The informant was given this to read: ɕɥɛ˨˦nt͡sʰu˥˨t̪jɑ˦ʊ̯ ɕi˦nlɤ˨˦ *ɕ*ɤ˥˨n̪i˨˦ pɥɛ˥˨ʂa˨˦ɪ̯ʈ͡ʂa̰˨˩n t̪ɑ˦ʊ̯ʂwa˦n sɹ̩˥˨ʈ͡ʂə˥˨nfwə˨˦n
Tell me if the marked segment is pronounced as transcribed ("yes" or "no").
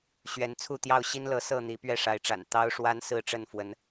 no